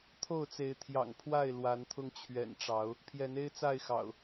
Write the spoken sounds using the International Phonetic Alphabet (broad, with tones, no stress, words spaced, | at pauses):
t̪ʰo˥˨ʊ̯t͡se˨˦ɪ̯ t̪ʰjɑ̰˨˩ŋ pʰwa˥˨ɪ̯ lwa˨˦nt̪ʰʊ˧ŋ t͡ɕʰɥɛ̰˨˩nʈ͡ʂɑ˨˦ʊ̯ | pʰjɛ˨˦ne˦ɪ̯t͡sa˥˨ɪ̯xɑ̰˨˩ʊ̯